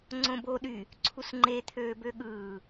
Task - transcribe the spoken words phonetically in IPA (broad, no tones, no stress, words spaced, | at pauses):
ŋ͡ǀõbo ɗy | ǀʰusŋ͡ǃe t̪ʰøːbøɠɯː